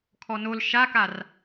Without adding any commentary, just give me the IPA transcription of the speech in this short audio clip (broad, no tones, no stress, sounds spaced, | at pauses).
kʰ ɔ n o l ʃ a k a r